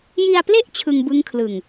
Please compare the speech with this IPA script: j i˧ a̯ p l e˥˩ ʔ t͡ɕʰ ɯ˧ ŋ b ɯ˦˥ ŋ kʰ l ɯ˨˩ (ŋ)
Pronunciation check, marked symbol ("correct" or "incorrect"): correct